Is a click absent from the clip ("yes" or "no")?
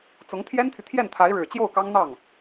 yes